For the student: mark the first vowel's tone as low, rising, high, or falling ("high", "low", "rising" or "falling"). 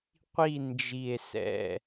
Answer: falling